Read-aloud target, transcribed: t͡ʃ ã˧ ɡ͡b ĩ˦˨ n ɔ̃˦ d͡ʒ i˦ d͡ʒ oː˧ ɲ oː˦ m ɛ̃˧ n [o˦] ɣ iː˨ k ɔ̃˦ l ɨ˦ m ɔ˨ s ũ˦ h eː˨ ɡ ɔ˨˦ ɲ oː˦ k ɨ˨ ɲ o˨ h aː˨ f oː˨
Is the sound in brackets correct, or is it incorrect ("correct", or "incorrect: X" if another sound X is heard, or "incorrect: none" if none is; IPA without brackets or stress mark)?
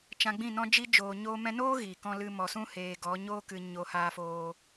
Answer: incorrect: oː˦